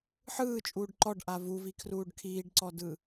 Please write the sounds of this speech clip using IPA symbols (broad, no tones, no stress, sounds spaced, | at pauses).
ħ ɯː t͡ʃʼ uː ɖ ǃ ɔ ɖ ʔ a v u v i kʰ r uː ɖ kʰ iː ɖ ǀ ɔ d ɯ